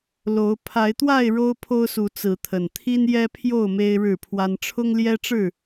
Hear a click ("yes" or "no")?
no